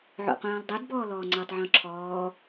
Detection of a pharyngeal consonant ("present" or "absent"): present